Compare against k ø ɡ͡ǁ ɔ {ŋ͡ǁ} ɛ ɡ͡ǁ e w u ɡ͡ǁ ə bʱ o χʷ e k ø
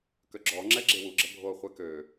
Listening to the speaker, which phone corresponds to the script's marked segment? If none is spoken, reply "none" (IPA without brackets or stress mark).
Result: ŋ͡ǁ